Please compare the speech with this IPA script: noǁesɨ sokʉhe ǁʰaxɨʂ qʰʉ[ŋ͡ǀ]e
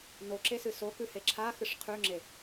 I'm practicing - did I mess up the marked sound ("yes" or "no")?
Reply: yes